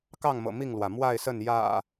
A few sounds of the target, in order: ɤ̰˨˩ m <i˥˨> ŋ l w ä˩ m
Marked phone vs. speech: correct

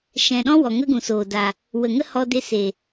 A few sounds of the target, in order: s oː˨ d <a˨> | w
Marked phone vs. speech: correct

